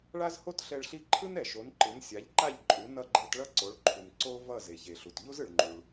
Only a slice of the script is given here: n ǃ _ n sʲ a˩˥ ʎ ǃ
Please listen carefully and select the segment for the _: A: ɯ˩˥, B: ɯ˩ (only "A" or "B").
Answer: A